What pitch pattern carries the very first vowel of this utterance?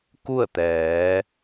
falling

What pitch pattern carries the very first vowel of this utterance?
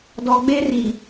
low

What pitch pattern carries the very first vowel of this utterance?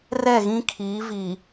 falling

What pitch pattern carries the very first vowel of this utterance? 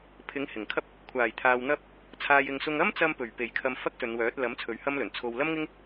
rising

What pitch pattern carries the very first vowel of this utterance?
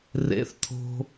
rising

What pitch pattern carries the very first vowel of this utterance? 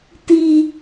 high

